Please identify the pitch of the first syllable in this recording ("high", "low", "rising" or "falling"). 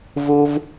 high